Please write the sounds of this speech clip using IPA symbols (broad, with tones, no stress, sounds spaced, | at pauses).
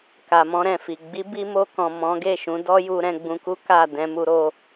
k a˨ m ɔ̃˧ ɾ ɛ̃˨ f i˨ ɡ͡b i˨˦ b i˧ m o˧ k ɔ̃˨ m ɔ̃˨˦ ɡ e˦˨ ʃ ũ˨˦ d ɔ˦ j u˧ ɾ ɛ̃˧ ɡ͡b ũ˧ k u˦ k a˦˨ d ɛ̃˧ m u˧ ɾ o˧